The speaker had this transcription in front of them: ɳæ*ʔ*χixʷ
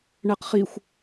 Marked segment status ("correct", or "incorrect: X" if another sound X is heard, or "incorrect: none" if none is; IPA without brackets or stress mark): incorrect: q